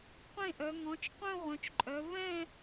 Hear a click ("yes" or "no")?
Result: yes